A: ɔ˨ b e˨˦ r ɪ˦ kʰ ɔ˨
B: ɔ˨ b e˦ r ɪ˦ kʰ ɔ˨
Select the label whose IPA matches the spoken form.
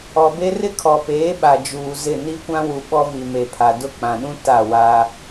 B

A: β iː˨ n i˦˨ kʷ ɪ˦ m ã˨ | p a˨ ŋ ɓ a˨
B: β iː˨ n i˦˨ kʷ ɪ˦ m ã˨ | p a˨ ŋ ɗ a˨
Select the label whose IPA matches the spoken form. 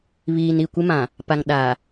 B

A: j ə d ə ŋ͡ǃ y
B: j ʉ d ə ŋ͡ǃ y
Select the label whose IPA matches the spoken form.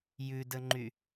B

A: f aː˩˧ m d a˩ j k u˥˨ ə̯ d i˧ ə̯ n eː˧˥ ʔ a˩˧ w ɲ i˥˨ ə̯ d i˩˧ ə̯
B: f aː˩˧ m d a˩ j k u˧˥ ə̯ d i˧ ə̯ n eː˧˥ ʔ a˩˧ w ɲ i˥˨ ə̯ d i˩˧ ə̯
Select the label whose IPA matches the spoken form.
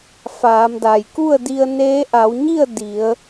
A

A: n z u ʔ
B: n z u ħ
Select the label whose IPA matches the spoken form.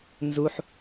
B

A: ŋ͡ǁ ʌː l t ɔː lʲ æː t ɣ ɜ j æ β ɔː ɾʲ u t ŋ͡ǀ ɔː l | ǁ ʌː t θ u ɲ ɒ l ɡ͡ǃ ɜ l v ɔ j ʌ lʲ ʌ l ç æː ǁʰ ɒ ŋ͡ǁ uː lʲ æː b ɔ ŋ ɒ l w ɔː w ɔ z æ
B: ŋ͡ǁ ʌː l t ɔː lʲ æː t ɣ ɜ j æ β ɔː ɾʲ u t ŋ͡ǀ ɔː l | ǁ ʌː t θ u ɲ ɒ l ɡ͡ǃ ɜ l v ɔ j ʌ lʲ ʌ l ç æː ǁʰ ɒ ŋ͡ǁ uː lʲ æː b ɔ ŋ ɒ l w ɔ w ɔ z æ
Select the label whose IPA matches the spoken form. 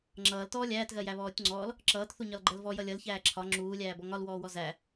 A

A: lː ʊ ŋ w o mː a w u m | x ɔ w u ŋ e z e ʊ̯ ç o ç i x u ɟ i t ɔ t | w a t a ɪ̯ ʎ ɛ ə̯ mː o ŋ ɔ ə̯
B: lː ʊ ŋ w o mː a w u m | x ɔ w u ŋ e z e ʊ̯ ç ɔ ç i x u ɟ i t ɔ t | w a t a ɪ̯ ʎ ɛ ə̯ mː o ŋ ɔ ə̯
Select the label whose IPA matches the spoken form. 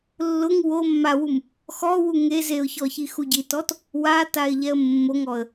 B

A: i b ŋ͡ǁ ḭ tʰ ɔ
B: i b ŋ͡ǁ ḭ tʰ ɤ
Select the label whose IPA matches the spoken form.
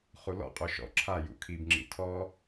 A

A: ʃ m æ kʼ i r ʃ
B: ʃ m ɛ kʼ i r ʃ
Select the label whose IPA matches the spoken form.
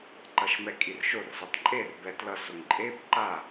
B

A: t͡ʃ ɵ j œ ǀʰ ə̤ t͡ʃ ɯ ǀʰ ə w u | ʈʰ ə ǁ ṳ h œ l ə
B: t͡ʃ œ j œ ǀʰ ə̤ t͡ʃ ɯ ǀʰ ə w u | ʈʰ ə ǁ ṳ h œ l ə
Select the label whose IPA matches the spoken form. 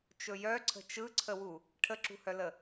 A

